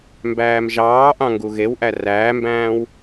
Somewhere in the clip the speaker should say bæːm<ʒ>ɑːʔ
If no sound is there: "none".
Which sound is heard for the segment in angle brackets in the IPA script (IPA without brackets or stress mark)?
ʒ